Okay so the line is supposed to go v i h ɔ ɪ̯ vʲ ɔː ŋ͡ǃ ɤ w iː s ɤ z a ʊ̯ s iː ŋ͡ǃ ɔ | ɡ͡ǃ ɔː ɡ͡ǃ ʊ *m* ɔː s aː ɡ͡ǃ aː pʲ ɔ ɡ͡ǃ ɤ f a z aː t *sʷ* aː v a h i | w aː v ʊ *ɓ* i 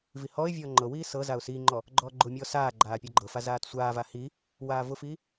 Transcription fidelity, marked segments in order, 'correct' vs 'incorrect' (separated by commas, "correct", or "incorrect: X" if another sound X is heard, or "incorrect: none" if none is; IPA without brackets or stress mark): incorrect: mʲ, correct, incorrect: f